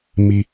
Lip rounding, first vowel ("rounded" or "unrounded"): unrounded